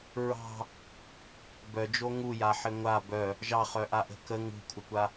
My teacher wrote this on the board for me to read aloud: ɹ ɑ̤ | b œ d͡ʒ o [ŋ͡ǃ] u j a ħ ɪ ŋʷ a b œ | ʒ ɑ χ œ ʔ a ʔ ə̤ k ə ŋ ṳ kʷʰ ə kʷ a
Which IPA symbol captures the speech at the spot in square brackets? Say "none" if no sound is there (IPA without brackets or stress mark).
ŋ